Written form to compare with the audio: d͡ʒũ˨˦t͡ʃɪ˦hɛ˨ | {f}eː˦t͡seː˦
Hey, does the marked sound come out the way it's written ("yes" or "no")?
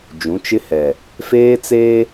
yes